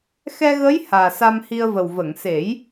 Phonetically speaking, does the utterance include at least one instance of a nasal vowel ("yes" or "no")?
no